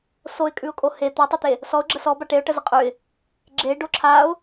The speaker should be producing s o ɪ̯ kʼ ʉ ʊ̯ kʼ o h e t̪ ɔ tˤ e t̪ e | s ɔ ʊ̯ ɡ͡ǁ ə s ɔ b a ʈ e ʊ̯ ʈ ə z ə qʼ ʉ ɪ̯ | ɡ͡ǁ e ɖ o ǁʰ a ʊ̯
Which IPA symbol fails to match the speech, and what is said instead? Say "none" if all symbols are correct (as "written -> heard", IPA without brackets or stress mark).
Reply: none